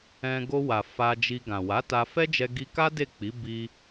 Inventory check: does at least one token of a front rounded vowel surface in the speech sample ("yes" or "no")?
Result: no